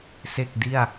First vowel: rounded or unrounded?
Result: unrounded